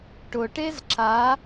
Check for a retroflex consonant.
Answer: present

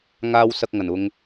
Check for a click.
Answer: absent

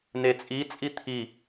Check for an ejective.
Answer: present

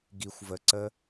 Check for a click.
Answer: present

